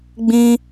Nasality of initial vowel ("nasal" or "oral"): nasal